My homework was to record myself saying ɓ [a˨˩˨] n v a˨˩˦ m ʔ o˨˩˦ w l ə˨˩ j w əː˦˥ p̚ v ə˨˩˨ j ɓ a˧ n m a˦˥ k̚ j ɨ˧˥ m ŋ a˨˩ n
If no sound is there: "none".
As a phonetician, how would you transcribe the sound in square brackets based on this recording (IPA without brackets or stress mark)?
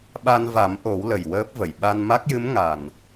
a˧